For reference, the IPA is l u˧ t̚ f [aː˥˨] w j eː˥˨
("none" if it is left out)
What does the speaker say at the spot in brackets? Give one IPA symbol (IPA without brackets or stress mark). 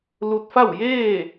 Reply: a˥˨